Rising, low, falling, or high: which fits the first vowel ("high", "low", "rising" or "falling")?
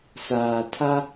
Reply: low